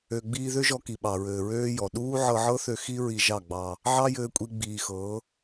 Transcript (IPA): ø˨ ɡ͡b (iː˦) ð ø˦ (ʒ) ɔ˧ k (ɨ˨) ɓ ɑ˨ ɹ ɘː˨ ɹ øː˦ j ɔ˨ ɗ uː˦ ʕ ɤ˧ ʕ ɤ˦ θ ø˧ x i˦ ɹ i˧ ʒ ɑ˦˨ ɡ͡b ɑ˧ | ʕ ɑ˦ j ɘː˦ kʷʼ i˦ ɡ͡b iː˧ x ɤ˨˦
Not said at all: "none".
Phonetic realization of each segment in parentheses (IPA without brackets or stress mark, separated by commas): iː˧, ʒ, i˨